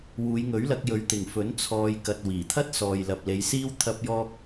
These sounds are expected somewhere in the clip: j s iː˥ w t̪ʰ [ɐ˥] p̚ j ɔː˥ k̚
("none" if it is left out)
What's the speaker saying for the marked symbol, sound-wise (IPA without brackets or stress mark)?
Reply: ɐ˥